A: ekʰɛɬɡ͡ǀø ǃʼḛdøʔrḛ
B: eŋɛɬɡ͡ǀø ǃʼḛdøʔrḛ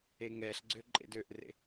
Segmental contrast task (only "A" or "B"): B